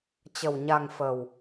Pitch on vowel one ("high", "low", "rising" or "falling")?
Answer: low